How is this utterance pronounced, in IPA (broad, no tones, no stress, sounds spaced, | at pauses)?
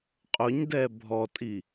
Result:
qʼ ʊ ɲ d ɛ bʱ ɔ tʼ i